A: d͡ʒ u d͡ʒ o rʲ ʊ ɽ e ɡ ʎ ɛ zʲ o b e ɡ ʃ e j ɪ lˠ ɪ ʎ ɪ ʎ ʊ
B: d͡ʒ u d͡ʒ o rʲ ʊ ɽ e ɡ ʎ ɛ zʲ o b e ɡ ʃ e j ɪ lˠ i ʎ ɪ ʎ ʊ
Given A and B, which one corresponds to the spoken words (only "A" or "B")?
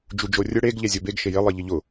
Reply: B